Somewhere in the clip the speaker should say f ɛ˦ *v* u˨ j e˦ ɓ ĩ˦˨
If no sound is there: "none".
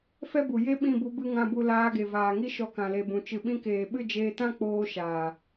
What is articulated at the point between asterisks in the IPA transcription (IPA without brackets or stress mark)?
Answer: b